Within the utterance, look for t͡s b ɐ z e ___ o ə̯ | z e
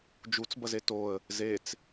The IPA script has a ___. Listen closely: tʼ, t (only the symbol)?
t